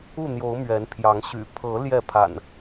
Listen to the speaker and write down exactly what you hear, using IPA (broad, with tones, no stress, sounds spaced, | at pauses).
u˥˨ n̪ j o˨˦ ʊ̯ m ɥ ɛ˨˦ n pʰ j ɑ˨˦ ŋ ɕ y̰˨˩ pʰ ɤ˨˦ l j ɛ˥˨ pʰ a̰˨˩ n